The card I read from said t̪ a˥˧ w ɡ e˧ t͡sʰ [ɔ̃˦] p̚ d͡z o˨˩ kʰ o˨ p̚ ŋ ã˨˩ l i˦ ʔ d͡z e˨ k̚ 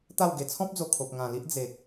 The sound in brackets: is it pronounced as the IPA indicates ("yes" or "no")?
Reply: yes